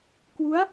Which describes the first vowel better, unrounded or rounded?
rounded